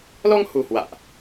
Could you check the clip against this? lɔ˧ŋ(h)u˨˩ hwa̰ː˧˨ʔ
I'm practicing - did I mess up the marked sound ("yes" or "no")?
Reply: no